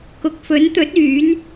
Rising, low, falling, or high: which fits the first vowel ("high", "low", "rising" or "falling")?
low